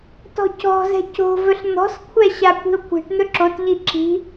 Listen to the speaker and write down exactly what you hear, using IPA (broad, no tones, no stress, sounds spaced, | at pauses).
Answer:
t ɔ̤ c ɔ̤ z ɛ̤ c o̤ v ɵ ɬ n̪ ɔ̤ s kʷʰ ɛ ɕ a kʷ i̤ o̯ kʷ e̤ ʈ n̪ ɵ ǁ o t ʎ i ǁ i̤